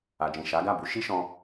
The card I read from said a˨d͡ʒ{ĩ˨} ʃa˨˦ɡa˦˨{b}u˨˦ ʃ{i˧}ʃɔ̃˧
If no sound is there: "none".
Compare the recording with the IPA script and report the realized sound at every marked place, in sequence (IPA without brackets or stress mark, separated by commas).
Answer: ĩ˨, b, i˦